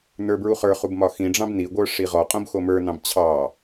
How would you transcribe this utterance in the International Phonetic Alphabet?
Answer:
nə˞bɹuχə˞χub mɒxĩɖ͡ʐɑ̃b niɡʷə˞ ʂiʁɔqʼõb xomə˞nɑ̃b t͡ɕʰɑ

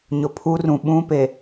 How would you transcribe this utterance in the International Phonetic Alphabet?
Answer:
ɲʊ˨pʰu˦rũ˨ ɓũ˦pe˨

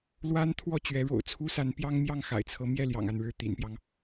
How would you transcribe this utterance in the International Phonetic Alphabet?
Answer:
lwa˥n t̪ʰwɔ˥˩ t͡ɕɥɛ˧˥ɻo̰˨˩ʊ̯ t͡sʰu˥sa˧˥n pjɑ˥ŋmjɑ˥˩ŋ xa̰˨˩ɪ̯t͡sʰɤ˧˥ mjɛ˥˩ljɑ̰˨˩ŋ a˥˧nɻɻ̩˥˩t̪ḭ˨˩npjɑ˦ŋ

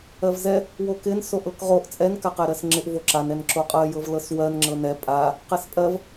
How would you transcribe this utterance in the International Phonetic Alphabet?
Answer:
ɜvzɛ | wokɪn soʔɤkʁoʔ t͡sʼɛn kaqɛɾɜsŋ͡ǁɪʔ voǁan ɛnǁoqʼɜ jɤvlɤswɜn ŋ͡ǁɤnɛ pʼa | qɛspʼɜv

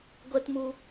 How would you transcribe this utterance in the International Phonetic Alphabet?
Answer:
ɡʷɛ˥tmu˥

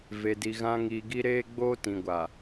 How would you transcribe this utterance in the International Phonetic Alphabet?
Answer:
ve˨di˨ ɣã˦ ŋiː˨ɡi˦ ɾeː˦ɡ͡boː˦tĩ˨ɡʷa˨

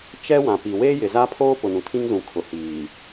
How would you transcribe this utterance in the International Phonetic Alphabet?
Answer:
t͡ʃɛ˦wã˨pi˨ weː˦jɪ˨za˦pʰoː˦ pʊ˨nũ˨tʰĩ˦ŋzũ˨ kʰʊ˨hiː˨

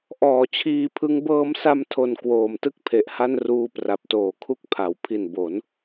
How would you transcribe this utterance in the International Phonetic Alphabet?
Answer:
ʔɔː˨˩t͡ɕʰiː˧pʰɯ˦˥ŋ bɤː˧msa˧mtʰo˨˩n kwoː˨˩mtɯ˥˩k̚pʰe˨˩ʔha˥˩n ruː˦˥pra˨˩p̚toː˨˩kʰu˥˩k̚ pʰa˩˦w pʰi˨˩nbo˩˦n

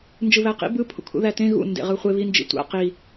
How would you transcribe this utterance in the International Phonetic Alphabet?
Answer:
nd͡ʒɯβæqḭ bɯ pʰṵkʰṵðætẽ ɣṵ ndḛʁɯχʷe βind͡ʒḭ tʷa̰ qi

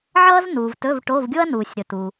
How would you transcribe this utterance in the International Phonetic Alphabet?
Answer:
ʕʌː˥znuː˨v tɵ˧˥˧vʈo˧˥˧v ɡʲo˥ɐ̯nuː˨sʲ ɾɵ˨tu˨

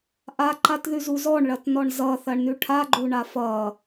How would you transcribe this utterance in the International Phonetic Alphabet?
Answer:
ʔaǃatðʉzu zɔɳɭɐtnɔɳ zʌθɐɳnʉ ʈʰaɡ͡ǃuɳa fʌ

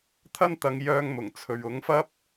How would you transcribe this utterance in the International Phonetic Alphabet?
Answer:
t̪ʰɐ˥nt̪ɐ˨˧ŋjœː˧ŋmʊ˨˩ŋ t͡sʰɵ˨ɥʊ˨˥ŋfɐ˥p̚

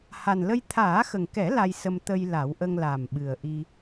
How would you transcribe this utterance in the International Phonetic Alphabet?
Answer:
ha˨˩nlə˧j t̪ʰaː˨˩˦xə˨˩ŋkɛ˨˩˦ la˧jsə˧m t̪ə˧jla˨˩˦wʔə˧ŋ la˨˩mɓɨ˨˩ə̯ ʔi˧

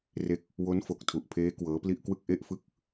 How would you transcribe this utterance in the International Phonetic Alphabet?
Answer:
re˦˥k̚ | wo˦˥nfo˨˩k̚tʰu˨˩ʔpʰeː˦˥ kwɤː˦˥pli˥˩ʔkwɯ˥˩k̚ ʔe˥˩ʔfɯ˥˩k̚

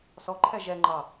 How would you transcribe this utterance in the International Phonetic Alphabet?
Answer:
sɔǃʰɛ ʒɛ ŋ͡ǃɑ

